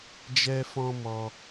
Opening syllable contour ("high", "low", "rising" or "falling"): high